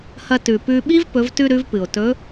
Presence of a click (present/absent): absent